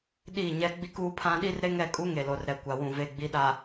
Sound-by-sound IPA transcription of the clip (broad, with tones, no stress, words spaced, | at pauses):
ɗiː˦˨ɲɛ˦ ɡ͡bi˦kuː˦pʰã˦ ɗi˦rɾe˦ŋɛ˦˨kʼu˦ ŋe˨lo˨rɾɛ˨ kʷa˨wũ˨ ve˨ ɡ͡bi˨ɗa˨